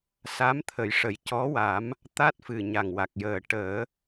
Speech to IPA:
s a˧˥ m t̪ʰ ə˨˩ j ʂ ə˨˩ j c ɔ˧˥ w a˨˩˦ m | t̪ a˦˥ t̚ f ɨ˨˩ ɲ a˨˩ ŋ w a˨˩ k̚ j əː˨˩ ʈ əː˨˩˦

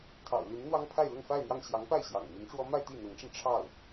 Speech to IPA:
t̪ʰ ɑ̰˨˩ ʊ̯ l y˧˥ n n̪ w ɑ˥ ŋ pʰ a˥˧ ɪ̯ l ʊ˥˧ ŋ f a˥˧ ɪ̯ n̪ j ɑ˥˩ ŋ ɕ j ɑ˧˥ ŋ p a˥˩ ɪ̯ ɕ j ɑ̰˨˩ ŋ m i˧˥ n ʈ͡ʂ w ɔ˥ m a˥˧ ɪ̯ t̪ i˥˩ n̪ ɤ˧˥ ŋ ʈ͡ʂ ə˧ n ʈ͡ʂʰ ɑ˥˩ ʊ̯

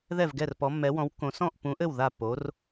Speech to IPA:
ð ɛ˥˩ v ɡ ɛ˥˩ r p ɔ˨˥ mː ɛ˨˥ w ɔ̃˨˥ w kː õ˨˥ s ɔ̃˥˩ ʔ p ũ˨˥ ʔ ɘ˥˩ w ð a˥˩ pː o˨˥ r

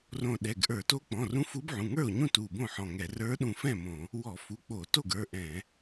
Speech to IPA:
r õ˧˩ ɗ ɛ˩˧˩ ɡ ʔ ə˞˧˩˧ t o˧˥ k͡p ɔ̃˩˧˩ r ũ˧˥ f u˧˥ b ʕ ũ˩˧˩ ŋ ə˞˥˩ o̯ ɲ ũ˥˩ t u˧˩ b õ˥˩ ħ ɔ̃˧˩ ŋ ɛ˧˩˧ r ə˞˧˥ ɗ ũ˧˩ f ɛ̃˥˩ m õ˧˩˧ | w ɔ˧˩˧ f u˩˧˩ k͡p o˧˩˧ t o˥˩ ɡ ə˞˩˧˩ ʔ ɛ̃˧˩˧

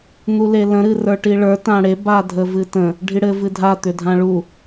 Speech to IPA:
n̪ u l e l ə̃ ɾ ɨ r ə˞ ʈ i ɭ ə˞ t ã ɽ e b a dʱ ə v ɨ t ə̃ | ɖʱ i ɽ ɘ v ɨ dʱ a t̪ ʏ dʱ ã ɭ u

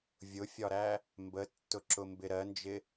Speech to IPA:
vʲ ʊ fʲ ɒ ɾ æ | m b ə tː ʊ ǁ ʊ m b ɪ ɾ ɜ n d͡ʒ ɪ

